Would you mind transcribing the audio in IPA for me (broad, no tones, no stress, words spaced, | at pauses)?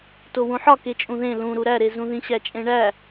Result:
towũħɒ ket͡ʃʼũðẽ lũɾu ɾæɾezũðĩ ɕæt͡ʃʼẽɳæ